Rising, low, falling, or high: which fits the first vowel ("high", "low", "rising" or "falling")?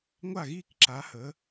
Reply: falling